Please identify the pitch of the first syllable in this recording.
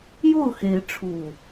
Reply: falling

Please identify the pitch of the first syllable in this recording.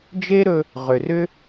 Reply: high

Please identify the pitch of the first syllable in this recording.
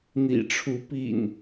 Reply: low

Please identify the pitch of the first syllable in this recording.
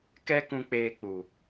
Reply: high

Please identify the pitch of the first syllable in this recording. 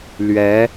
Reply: rising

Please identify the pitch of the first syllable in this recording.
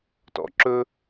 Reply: low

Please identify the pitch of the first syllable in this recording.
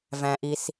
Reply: low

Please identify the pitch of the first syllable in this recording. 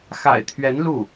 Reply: low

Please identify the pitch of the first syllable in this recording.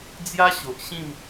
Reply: high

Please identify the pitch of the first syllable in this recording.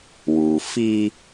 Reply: low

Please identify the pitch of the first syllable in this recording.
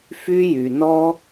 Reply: high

